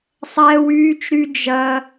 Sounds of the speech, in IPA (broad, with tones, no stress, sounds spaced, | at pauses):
sˤ ɛː˦ w yː˦ t͡ʃ ɾ y˦ d͡ʒ ɐ˦